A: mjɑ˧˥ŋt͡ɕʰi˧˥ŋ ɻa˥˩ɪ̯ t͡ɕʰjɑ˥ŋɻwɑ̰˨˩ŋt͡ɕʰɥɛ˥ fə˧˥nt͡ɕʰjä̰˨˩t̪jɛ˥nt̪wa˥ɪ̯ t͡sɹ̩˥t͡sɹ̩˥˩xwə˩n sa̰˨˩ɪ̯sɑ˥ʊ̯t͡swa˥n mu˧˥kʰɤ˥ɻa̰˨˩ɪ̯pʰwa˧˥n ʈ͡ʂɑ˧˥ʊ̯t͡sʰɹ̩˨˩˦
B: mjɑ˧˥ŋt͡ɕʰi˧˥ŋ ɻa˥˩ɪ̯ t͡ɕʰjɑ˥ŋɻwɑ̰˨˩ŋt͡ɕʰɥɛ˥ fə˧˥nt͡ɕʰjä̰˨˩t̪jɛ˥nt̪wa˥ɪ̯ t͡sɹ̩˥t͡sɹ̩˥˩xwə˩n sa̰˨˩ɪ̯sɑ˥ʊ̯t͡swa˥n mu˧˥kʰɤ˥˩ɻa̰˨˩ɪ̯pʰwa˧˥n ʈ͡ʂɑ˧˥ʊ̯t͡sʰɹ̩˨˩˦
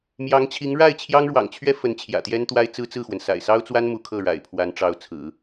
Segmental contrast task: B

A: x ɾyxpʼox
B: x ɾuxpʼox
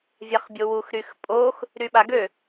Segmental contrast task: A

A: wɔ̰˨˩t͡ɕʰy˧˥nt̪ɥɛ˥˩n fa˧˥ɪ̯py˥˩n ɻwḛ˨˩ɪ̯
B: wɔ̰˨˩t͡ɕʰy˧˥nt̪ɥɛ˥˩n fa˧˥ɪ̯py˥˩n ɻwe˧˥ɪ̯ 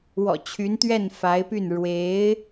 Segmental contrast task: B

